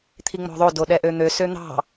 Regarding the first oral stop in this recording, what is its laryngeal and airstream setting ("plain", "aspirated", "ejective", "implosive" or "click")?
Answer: aspirated